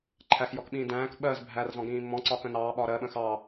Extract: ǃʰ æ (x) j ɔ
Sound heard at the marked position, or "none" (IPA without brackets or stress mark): x